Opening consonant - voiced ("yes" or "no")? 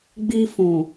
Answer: yes